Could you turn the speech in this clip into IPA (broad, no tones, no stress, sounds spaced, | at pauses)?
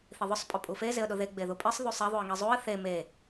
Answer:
θ i ðˤ ʊ sˤ pʼ ʊ pʼ u f e z e ə̯ ɗ ʊ ð e ɡ͡b e ð u pʼ i sˤ ð u sˤ e ðˤ u ə̯ ŋ i zˤ u ə̯ θ e m e